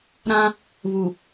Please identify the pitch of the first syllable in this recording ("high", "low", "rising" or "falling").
high